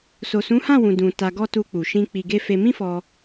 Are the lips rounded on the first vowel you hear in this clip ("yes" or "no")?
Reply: yes